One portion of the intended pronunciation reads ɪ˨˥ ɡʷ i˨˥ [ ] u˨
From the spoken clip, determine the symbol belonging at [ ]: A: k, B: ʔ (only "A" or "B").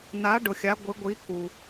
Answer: A